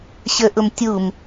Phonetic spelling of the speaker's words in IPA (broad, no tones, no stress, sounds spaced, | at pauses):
ɕ ə ʔ ʊ m tʲ u m